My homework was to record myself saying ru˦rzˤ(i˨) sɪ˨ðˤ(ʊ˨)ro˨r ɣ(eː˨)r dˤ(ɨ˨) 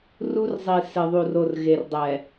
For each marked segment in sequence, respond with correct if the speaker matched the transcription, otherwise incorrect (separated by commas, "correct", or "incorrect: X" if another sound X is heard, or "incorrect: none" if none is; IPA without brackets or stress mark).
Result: correct, incorrect: u˨, incorrect: e˨, incorrect: ɛ˨